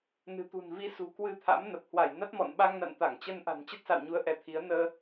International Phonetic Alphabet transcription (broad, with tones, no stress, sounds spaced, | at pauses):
n ɨ̤˨˩ t̪ ṳ˨˩ n v i˨˦ s ṳ˨˩ k w ɨ˧ t̪ʰ a̰˧˥ m n ə˨˩ p̚ h w a˧˩ j n a˦˥ t̚ m ɔ̰˧˨ n ɓ a˧ ŋ n a̰˧˨ n t̪ a˧˩ ŋ t͡ɕ ə˧ n ʔ a̤˨˩ n t͡ɕ ə˦˥ t̚ s a̰˧˨ w ɲ u˨˦ ə̯ ʔ ɛ˧ t̪ʰ i˨˦ ə̯ n əː˧